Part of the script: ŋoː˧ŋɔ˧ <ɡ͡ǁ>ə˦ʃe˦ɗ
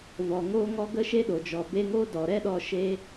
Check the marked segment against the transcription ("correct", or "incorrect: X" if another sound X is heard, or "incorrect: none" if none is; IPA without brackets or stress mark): incorrect: ɡ